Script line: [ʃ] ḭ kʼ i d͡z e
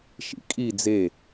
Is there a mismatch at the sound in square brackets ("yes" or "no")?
no